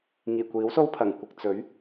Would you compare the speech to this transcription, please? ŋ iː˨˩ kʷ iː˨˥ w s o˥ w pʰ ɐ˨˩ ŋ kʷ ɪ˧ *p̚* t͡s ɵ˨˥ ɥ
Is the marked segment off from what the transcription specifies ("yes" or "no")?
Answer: yes